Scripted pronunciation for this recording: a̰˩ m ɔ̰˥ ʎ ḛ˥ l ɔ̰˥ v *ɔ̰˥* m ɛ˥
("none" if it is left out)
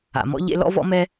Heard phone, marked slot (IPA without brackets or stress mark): ɔ̰˥